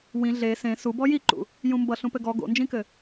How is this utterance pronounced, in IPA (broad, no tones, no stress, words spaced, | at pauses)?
wĩ ɮe sẽ subɔ jiǃṵ | jũmbʌ ɬũpɘɡɔ ɡo̰nd͡ʒĩkɘ